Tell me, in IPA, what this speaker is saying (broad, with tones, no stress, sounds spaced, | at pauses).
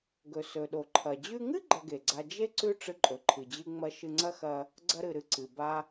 ɡ ɵ˩ s ɵ˩ ɗ o˩ ǃʰ ɐ˩ d͡ʑ ʉ˧ ŋ ɨ˥ ɡ͡ǃ ɐ˧ ɡ e˩ ɡ͡ǀ a˧ d͡ʒ e˥ ǀ ʉ˥ ʈ͡ʂ ɨ˧ ǃʼ ɵ˩ ǃʰ ɨ˩ d͡ʑ ɨ˥ ŋ͡m ɐ˥ ʃ ɨ˧ ŋ͡ǀ ɐ˥ x ɐ˧ | ɡ͡ǀ ɐ˧ ɾ ɨ˩ ɾ ɨ˧ ǀ ɨ˩ b a˧